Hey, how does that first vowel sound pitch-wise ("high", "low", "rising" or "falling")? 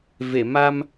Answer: low